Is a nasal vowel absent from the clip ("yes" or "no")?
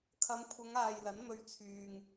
yes